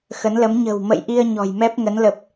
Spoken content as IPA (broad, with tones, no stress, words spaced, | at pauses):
xə˨˦nlə˨˦m ɲə̤˨˩wmə̰˧˨jʔi˧ə̯ ɲɔ̤˨˩jmɛ˦˥p̚ŋə˨˦n lə˨˩p̚